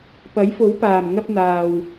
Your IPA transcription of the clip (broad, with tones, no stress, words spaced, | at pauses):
pɐ˨˥jfo˨˥wpaː˨˩m ŋɐ˧p̚n̪aː˨w